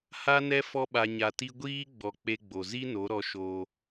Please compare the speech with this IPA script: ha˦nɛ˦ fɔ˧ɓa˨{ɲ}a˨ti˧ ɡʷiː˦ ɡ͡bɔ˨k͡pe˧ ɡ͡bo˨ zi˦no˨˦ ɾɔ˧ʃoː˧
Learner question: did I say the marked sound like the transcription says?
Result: yes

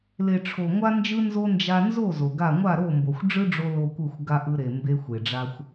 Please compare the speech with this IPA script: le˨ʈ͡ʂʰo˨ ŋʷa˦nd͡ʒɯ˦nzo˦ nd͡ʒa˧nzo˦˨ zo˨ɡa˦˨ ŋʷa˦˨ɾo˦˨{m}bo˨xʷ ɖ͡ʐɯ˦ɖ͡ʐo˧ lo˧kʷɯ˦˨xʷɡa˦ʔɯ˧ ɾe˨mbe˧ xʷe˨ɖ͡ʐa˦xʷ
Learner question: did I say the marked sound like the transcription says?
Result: yes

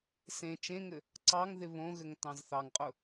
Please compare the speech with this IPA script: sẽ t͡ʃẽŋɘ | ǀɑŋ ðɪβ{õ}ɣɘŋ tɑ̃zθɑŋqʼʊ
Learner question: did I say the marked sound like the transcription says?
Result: yes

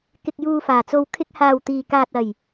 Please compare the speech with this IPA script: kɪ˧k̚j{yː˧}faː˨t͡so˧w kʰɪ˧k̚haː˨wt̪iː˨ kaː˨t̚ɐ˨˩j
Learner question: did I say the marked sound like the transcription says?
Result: no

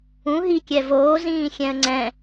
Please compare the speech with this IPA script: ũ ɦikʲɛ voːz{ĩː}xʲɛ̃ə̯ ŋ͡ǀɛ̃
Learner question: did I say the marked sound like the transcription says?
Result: yes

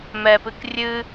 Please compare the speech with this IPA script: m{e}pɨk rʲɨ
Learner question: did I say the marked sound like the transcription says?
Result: no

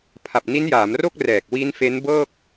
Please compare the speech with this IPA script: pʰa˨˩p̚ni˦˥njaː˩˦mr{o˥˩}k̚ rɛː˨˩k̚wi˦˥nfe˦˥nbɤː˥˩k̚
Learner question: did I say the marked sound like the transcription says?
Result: yes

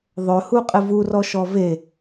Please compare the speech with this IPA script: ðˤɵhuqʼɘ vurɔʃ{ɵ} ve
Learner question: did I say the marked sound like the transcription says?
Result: no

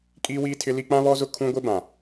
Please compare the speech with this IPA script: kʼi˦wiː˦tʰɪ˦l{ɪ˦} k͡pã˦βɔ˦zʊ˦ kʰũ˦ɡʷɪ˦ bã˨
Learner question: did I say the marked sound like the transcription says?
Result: no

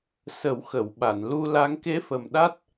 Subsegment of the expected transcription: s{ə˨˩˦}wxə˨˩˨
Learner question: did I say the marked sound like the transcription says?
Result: yes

